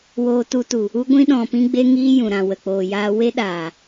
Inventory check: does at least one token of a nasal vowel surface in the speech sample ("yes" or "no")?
yes